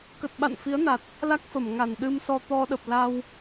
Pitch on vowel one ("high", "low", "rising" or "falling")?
low